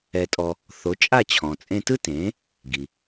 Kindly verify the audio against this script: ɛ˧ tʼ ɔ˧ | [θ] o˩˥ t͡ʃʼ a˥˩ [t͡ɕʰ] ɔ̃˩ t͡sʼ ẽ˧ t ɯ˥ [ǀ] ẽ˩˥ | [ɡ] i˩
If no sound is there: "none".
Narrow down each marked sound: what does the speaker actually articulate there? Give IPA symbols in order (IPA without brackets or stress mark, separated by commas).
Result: θ, t͡ɕʰ, t, ɡ